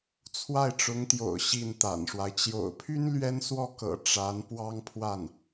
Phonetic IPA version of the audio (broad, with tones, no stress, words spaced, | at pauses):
t͡sʰwa˥˩ɪ̯ʈ͡ʂʊ˧˥ŋt̪jo̰˨˩ʊ̯ ɕi˥˩nt̪a̰˨˩nʂwa˦ɪ̯ t͡ɕjo̰˨˩ʊ̯pʰy˥n lɥɛ˥n swɔ˥˩kɤ̰˨˩ ʈ͡ʂa˧˥n pwɑ˥ŋpʰwa˥˩n